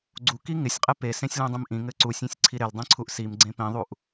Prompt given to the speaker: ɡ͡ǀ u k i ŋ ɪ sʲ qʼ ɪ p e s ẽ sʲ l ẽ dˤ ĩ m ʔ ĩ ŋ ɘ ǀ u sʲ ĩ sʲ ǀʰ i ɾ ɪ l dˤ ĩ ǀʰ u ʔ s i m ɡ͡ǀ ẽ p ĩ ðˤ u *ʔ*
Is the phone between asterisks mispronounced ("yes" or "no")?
no